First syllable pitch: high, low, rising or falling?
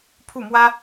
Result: falling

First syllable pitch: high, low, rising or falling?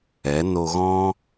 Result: rising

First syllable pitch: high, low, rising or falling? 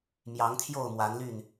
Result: rising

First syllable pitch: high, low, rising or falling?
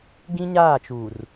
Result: high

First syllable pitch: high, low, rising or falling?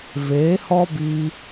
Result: rising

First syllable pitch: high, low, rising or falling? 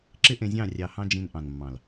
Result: high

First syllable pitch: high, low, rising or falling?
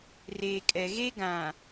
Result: low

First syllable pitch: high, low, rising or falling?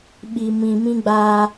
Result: low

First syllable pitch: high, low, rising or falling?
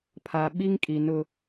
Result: low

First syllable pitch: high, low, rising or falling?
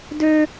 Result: high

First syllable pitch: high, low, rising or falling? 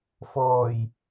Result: low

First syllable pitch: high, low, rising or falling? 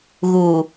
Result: low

